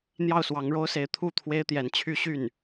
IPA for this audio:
n̪ j ɑ˥˩ ʊ̯ s w ɑ˧˥ ŋ ɻ o˥ ʊ̯ s e˧˥ ɪ̯ t̪ʰ u˥˩ t̪ʰ w e˥ ɪ̯ t̪ j ɛ˧˥ n t͡ɕʰ y˥ ɕ y˥˩ n

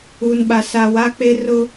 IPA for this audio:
u˨ n ɓ a˨ s a˨ w a˦ k͡p e˦ r ʊ˦

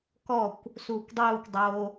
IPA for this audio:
k ɔ kʷ | s uː kʷ dˤ uː kʷ dˤ o

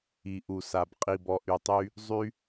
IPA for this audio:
i˨ ʔ u˨ s a˨ b qʼ i˨ b ɔ˨ ʔ y˨ tˤ y˧ | zˤ y˦

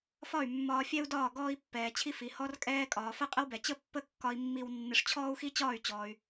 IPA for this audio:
f ɒ˥˩ y̯ mː ɒː˧ fʲ ɛ˥ u̯ d ɒː˥˩ ɡ ɔː˧ i̯ pː ɛː˩ t͡ɕʰ i˧ f i˩ h ɔ˧ r kʼ ɛː˧ kʼ ɒː˩ f ə˥˩ qʼ ə˥ w b ɛ˩ t͡ɕ ə˥˩ pː ə˥ kː ɒ˧ i̯ mː i˧ w nː ɪ˧ ʂ t͡ɕʰ ɔː˥ u̯ x i˥ t͡ɕ ɒː˥˩ y̯ t͡ɕ ɔː˩ y̯

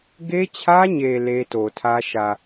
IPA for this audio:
ɡ e˦ t͡ɕʰ ä˦ ɲ e˨ l e˦ t o˨ tʰ ä˦ ʃ ä˨

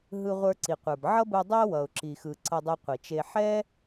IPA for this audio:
ɦ ɯ˧ ʁʷ ə˞˧ ǀ i˨ qʷ ə˞˨ b ʕ ʌ˦ b ɯ˧ dˤ æ˦ w ʌ˨ ʊ̯ ǁ i˨ x ɯ˨ ǀ ʌ˧ dˤ ɯ˧ qʷ i˨ t͡ʃ e˧ ħ ɛ˦

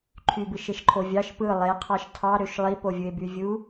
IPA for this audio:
ǃʰ y b ɯ ʃ e ʃ ǃʰ o vʲ ɑ ʃ p ɯ lˠ e qʰ ɑ ʃ tʰ ɑ ɾ ø ʃ lˠ i p o vʲ ɯ e̯ b y vʲ u

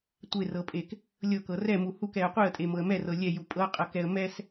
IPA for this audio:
tʷ e r ɤ pʼ e k | lʲ ɤ k ɤ r ɛ m u h u k ɛ ə̯ qʷ e ə̯ tʼ e m ɤ ə̯ m ɛ r ɤ lʲ ɛ j u pʼ ɤ qʼ ɤ k ɛ ə̯ m ɛ s

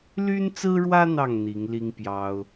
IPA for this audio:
l y˦ n t͡s ɹ̩˦ ɻ w ä˦ n̪ ɑ˥˨ ŋ n̪ i˨˦ ŋ l i˦ ŋ p j ɑ˦ ʊ̯

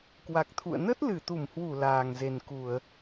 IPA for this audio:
k w a˨˩ k̚ t̪ʰ ṵ˧˨ ə̯ n ə˦˥ t̚ l ɨ˧˩ t̪ u˧˩ m h w u˧˩ l aː˨˩ ŋ z e˨˩ n k u˧˩˨ ə̯

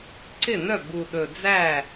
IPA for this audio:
ǀ ɪ˥˩ n œ˥˩ b u˨˩ ɗ ɵ˨˩ d͡z æ˥˩

